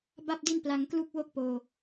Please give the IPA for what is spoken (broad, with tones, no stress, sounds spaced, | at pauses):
b a˥˩ p̚ d i˥˩ n p l a˧ ŋ k l u˥˩ k̚ w o˥˩ k̚ p oː˧